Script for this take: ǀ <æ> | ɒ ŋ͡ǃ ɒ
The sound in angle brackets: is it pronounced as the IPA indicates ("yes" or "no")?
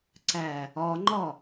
yes